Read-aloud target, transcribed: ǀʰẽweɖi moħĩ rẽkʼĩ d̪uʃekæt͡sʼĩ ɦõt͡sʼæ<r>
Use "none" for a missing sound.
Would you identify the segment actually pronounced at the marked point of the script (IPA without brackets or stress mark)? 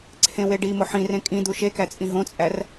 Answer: r